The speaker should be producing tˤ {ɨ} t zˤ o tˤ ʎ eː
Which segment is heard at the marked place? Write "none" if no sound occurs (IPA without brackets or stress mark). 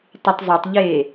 ɨ